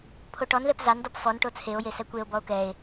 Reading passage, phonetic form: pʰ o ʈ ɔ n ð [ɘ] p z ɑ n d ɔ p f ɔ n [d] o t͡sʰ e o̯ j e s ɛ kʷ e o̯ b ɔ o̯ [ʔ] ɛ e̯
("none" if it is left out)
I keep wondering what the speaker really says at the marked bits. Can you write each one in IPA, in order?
ɛ, ʈ, k

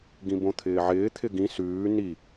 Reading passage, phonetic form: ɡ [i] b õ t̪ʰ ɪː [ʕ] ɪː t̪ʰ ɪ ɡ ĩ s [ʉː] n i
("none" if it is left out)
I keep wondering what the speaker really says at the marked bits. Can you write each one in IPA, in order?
ĩ, ʕ, ʉː

